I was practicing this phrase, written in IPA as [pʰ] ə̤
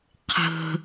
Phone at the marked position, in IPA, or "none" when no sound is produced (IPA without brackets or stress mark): qʰ